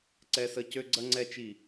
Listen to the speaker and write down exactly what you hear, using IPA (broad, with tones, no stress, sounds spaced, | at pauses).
ǀ ɛ˦ s ə˦ c ø˦ ɡ͡ǀ ɐ˦ ŋ͡ǀ ɛ˦ t͡ʃ i˦˨